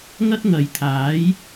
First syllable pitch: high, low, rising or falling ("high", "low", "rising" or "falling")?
high